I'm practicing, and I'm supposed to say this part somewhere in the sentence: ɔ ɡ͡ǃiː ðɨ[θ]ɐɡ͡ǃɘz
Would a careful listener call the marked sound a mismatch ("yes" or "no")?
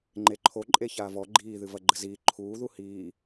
yes